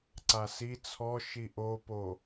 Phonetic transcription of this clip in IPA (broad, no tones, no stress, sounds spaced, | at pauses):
ǀ a s i t͡sʰ ɔ ʃ i ʔ o p o